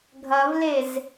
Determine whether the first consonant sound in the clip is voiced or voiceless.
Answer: voiced